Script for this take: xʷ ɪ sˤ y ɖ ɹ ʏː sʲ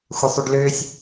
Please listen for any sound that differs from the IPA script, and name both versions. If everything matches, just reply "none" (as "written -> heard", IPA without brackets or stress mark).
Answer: ɹ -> l